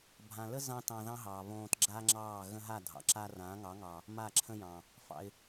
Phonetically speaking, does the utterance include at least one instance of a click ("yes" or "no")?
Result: yes